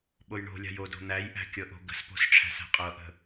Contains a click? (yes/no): no